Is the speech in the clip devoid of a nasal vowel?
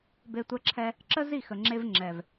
yes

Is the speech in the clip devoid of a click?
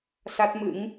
yes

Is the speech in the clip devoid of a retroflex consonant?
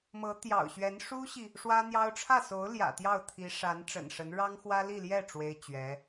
no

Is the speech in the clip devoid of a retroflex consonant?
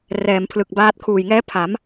yes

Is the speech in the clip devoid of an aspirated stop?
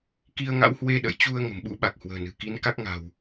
yes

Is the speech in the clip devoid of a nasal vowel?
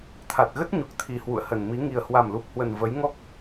yes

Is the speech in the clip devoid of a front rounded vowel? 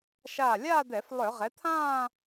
no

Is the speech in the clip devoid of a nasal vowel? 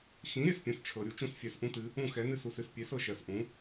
no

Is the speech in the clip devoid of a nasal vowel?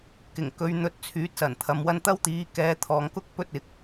yes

